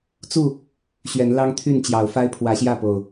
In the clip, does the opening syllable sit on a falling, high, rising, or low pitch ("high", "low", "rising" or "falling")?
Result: falling